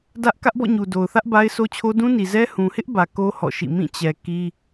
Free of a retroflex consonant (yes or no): yes